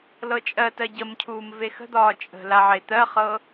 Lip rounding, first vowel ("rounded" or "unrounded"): unrounded